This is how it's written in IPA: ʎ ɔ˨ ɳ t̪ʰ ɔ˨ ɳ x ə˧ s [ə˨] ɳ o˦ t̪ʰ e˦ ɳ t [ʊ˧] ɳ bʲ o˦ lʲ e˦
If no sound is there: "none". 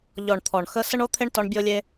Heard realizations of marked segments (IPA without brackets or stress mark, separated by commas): ə˦, ɔ˧